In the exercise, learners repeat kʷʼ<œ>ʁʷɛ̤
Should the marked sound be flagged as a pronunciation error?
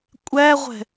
yes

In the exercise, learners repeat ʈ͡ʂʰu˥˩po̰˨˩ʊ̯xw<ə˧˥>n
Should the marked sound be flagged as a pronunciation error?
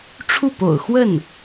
yes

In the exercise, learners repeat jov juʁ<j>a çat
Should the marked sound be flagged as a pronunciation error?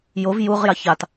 no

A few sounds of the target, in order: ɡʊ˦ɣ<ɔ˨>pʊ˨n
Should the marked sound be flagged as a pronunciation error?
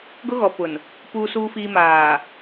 no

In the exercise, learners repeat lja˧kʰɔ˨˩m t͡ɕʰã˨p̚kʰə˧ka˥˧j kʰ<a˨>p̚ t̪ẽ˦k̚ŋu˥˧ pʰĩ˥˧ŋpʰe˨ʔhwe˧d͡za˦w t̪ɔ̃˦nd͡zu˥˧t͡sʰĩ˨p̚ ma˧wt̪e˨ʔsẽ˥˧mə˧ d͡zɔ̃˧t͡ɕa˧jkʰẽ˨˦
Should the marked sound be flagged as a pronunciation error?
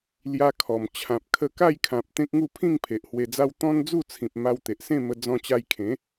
yes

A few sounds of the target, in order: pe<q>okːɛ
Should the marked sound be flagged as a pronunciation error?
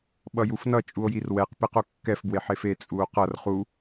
no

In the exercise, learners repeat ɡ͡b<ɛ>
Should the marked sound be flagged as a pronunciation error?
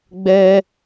no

